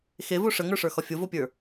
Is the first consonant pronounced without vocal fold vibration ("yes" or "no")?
yes